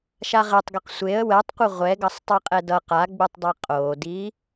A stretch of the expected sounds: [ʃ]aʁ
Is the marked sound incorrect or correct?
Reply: correct